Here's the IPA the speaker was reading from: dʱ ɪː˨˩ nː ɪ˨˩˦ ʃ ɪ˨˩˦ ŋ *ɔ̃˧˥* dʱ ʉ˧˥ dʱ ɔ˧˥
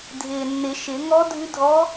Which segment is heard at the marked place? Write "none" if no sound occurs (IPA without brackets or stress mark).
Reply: ɔ˧˥